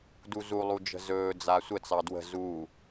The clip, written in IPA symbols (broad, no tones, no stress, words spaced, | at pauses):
duzulˠud͡ʒə̤ zɵː d͡zasʷə t͡sɑdwə̤ zuː